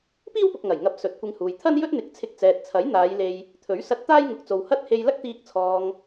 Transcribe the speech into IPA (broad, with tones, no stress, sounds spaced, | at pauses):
p iː˥ w p ʊ˨ k̚ ŋ ɐ˨˩ j ŋ ɐ˨˥ p̚ s ɵ˨˥ t̚ kʷ ɪ˧ ŋ h uː˨ j t̪ʰ ɐ˥ n j ɵ˥ t̚ n̪ ɪ˨˥ k̚ t͡sʰ ɪ˧ k̚ t͡s ɛː˨ t̚ t͡sʰ ɐ˨˥ j n̪ aː˨˧ j l e˧ j | t̪ʰ ɵ˨˥ ɥ s ɐ˧ t̚ t̪ aː˥ j ŋ ʊ˨˥ k̚ t͡s o˨ w h ɐ˥ t̚ h e˧ j l ɐ˥ k̚ t̪ iː˧ k̚ t͡sʰ ɔː˨ ŋ